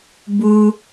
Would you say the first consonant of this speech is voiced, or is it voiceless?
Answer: voiced